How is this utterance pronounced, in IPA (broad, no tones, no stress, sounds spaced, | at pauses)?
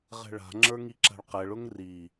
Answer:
ʁ ɛ̤ ɭ a̤ ŋ͡ǁ ə˞ ŋ i ǁ a̤ ɭ q ɛ ɭ ʊ ŋ r i